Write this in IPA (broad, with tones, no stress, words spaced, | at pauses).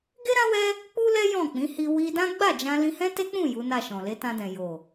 ɡe˦ɾã˦wɛ˦ | k͡pu˦lɛ˦ jɔ̃˦˨ k͡pĩ˨˦hi˧ wi˧dã˦ ɡ͡ba˦˨d͡ʒã˧ lĩ˧hɛ̃˦te˦k͡pũ˦˨ ju˨˦na˦˨ʃɔ̃˨ le˨˦tã˧dɛ̃˨ jo˨